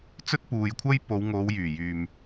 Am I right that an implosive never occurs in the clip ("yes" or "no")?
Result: yes